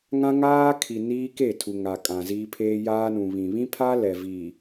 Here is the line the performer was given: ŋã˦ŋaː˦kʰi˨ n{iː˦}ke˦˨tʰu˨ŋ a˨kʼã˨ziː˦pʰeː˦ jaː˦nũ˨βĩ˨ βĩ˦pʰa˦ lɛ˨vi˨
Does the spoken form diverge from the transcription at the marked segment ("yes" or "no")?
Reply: no